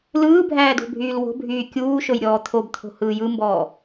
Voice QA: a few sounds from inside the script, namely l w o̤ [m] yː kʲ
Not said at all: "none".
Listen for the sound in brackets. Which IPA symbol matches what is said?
bʱ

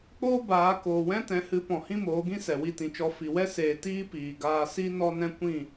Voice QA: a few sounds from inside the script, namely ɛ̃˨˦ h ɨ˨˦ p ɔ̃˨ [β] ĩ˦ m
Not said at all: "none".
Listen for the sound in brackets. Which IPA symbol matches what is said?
h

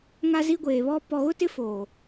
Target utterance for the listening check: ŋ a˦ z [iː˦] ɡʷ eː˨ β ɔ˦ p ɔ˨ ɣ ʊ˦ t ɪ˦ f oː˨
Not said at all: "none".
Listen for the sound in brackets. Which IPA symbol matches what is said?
i˦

